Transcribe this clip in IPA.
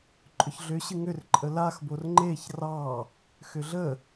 ǃʼʏçɮʏ ɕɨŋʏr ǃʼəlax borŋ͡ǃeç rɑ | xʏɮə

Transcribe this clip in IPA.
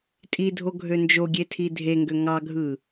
tʼidʱoɡʱø nd͡ʒoɡʲetʰi dʱeŋɡø ŋɑɡʱɯ

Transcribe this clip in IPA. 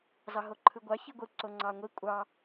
zɑɦoǃʰɯɡʷɑ çiɡʷɯ ǀoŋ͡ǀɑŋʷi kʷʼɑ

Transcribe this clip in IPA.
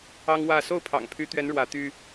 ɑ˦ŋwä˥˨ so˥˨ʊ̯pʰɑ̰˨˩ŋpʰy˨˦t̪ɥɛ˨˦n ɻwä˨˦t̪y˦

